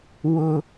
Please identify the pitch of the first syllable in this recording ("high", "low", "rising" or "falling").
high